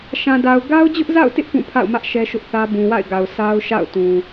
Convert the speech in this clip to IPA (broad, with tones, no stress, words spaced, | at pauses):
ʃã˨da˨ʊ̯ ɡa˦ʊ̯d͡ʑʊ˦ʔza̰˦˨ʊ̯tɪ˦ʔ pũ˦˨pʰa̰˦˨ʊ̯mä˦ʔ ʃɛ˦ʃʊ˦ʔθä˦ bũ˨wa̰˦˨ɪ̯ɡa˨ʊ̯ sʰa˦ʊ̯ ʃa̰˦˨ʊ̯ tũ˨